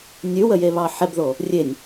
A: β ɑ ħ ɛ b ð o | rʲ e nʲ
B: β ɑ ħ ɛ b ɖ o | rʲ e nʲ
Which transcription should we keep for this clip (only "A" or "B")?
A